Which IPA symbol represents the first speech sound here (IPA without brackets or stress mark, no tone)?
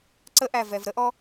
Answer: ǀ